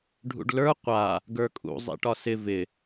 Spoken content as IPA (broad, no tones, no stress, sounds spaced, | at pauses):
ɖʱ ṵ ɖ l ə˞ qʷ a | ɡ ə˞ kʼ ṵ zˤ ḭ ʈ ɒ s ɪ v ɪ